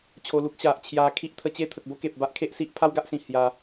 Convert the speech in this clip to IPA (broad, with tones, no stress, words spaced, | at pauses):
t͡ɕʰo˧lu˦k̚ ɕa˨ʔt͡ɕʰja˧ kʰi˦ʔt̪ʰə˧ t͡ɕe˦t̪ʰə˨k̚ bo˦ke˨p̚ba˦ʔ kʰe˦ʔsi˦ʔ pʰa˦wɡa˦ʔsĩ˨˩ hja˧